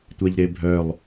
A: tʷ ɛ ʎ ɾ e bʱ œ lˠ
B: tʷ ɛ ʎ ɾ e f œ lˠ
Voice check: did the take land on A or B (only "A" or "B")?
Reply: A